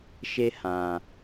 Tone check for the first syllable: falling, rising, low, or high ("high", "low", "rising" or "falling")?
high